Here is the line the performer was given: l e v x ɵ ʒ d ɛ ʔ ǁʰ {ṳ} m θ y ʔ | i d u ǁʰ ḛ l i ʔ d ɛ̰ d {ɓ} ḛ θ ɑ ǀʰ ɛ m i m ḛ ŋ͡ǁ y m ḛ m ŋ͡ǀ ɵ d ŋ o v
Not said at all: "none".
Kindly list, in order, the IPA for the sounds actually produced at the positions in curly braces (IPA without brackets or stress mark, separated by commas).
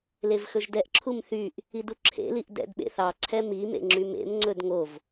u, ɓ